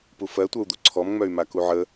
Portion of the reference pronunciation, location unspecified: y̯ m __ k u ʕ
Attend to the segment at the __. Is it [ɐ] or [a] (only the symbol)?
a